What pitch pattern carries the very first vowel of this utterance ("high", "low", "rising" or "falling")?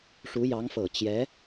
rising